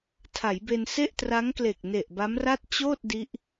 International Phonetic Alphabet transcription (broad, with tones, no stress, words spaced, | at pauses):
tʰa˩˦jbe˧n se˥˩ʔtra˦˥ŋkle˨˩k̚ ne˨˩ʔba˦˥mra˥˩t̚ t͡ɕoː˥˩t̚ di˦˥ʔ